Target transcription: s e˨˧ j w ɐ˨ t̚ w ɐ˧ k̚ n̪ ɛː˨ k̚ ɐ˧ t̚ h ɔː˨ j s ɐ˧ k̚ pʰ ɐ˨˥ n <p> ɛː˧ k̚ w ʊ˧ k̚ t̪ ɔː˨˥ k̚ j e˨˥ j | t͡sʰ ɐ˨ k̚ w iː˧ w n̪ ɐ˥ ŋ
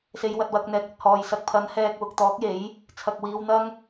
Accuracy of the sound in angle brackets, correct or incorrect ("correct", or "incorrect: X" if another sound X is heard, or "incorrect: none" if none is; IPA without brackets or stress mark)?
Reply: incorrect: h